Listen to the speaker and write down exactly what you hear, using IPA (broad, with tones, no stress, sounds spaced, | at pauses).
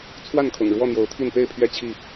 t͡sʰ w a˥˨ n kʰ ʊ̰˨˩ ŋ ɻ w ɔ˥˨ n̪ j o˨˦ ʊ̯ t̪ʰ i˥˨ n p e˥˨ ɪ̯ pʰ ɥ ɛ˥˨ t͡ɕʰ i˥˨